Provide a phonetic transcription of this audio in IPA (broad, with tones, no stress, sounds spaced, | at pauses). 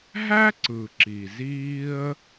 ɦ æ˥ ǀ ɯ˩ ǁ i˩ z iː˥ ə̯